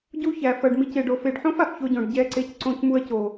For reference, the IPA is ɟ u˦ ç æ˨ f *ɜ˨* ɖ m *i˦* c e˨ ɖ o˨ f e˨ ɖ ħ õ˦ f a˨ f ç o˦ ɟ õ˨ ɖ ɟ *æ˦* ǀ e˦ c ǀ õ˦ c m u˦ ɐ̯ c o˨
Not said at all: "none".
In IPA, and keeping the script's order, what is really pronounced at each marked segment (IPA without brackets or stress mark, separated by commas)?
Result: ɜ˨, i˦, ɛ˦